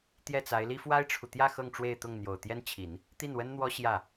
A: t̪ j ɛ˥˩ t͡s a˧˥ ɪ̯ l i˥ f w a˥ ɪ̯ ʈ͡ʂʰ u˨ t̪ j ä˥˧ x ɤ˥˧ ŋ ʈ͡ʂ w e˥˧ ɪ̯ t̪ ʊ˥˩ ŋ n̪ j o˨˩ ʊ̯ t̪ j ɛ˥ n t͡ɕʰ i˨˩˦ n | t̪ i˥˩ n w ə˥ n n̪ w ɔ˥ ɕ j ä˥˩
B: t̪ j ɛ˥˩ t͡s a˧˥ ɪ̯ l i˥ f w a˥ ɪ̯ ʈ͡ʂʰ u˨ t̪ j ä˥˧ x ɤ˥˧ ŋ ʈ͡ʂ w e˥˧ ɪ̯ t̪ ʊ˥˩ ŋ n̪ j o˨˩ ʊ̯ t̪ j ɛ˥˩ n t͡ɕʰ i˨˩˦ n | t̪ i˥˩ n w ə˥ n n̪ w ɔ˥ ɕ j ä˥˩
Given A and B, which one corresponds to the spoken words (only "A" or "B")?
A